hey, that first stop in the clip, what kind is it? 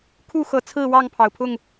aspirated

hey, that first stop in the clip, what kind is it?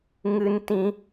plain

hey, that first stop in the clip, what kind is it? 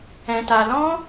plain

